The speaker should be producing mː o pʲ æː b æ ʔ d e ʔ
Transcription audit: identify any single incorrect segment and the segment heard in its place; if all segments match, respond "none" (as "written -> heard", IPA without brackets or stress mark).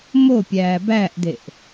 mː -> m